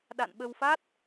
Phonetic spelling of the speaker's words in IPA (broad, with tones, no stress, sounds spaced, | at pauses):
ɗ a̰˧˨ n ɓ ə˧ w f a˦˥ t̚